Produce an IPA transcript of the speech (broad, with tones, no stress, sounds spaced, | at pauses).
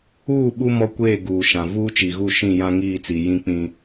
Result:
uː˦˨ ɓ u˦ m ɔ˦ kʷ eː˦˨ ɡ uː˨ ʃ ã˨ v uː˦ t͡ʃ i˨ ɣ u˦˨ ʃ ĩ˦˨ j ã˦ ŋ iː˦˨ t͡s i˨ j ĩ˦ k͡p ĩ˦